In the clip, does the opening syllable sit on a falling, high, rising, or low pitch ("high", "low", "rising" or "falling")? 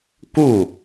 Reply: falling